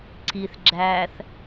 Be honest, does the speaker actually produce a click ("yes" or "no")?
yes